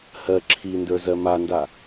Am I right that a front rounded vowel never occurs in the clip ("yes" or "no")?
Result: yes